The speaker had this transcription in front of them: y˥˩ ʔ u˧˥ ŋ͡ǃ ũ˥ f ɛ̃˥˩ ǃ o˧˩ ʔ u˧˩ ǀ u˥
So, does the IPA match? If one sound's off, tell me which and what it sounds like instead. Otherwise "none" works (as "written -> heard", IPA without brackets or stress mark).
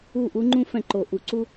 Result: y˥˩ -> u˥˩